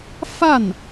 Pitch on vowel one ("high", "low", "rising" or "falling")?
falling